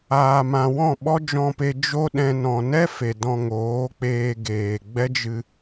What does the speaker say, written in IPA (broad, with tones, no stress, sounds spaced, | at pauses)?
aː˨ m ã˨ w ɔ̃˦˨ ɓ ɔ˦ d͡ʒ ɔ̃˧ p e˧ d͡ʒ o˦ ɗ ɛ̃˧ n ɔ̃˨ n ɛ˦ f e˨ d ɔ̃˧ ŋ oː˨˦ k͡p eː˧ ɡ eː˨ ɡ͡b ɛ˦ d͡ʒ ɨ˧